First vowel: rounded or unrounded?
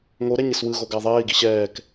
rounded